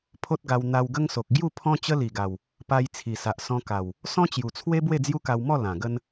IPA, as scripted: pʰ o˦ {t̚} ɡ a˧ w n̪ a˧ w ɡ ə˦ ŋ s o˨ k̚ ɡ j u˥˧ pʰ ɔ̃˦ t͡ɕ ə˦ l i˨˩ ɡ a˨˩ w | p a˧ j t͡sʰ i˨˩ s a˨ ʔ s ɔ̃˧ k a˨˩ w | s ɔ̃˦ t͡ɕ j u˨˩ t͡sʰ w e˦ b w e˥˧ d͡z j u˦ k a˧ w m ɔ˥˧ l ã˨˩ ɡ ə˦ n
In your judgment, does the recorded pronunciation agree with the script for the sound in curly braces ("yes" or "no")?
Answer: yes